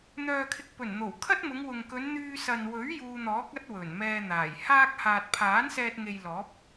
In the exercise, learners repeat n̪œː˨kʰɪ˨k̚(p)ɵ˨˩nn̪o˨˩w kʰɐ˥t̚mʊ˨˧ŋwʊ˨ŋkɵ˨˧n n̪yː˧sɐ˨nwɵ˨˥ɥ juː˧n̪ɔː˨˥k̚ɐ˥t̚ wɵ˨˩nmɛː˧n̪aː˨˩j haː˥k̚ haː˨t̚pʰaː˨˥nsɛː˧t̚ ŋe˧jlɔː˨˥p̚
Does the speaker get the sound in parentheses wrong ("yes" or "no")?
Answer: no